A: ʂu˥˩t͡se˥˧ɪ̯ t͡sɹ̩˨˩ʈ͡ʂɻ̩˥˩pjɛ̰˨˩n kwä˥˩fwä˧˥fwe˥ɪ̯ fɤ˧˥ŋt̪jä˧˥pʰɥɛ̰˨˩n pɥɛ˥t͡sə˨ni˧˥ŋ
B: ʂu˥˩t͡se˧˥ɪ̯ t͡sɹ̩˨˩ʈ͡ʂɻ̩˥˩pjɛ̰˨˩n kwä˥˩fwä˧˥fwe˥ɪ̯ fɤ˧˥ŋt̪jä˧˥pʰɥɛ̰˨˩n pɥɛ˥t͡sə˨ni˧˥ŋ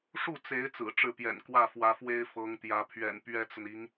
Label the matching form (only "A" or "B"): B